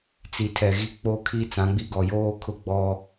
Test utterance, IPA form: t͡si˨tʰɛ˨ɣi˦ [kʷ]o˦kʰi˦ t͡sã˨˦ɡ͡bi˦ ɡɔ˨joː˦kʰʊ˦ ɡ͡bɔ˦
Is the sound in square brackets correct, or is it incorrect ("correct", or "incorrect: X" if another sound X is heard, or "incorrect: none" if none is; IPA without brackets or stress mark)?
incorrect: k͡p